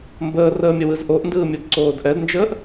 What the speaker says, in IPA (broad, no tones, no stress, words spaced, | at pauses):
mbəːrəːmʲəwɯz ʔoʔndɯːmʲodǀoːd ʔɛdnd͡ʒəːʔ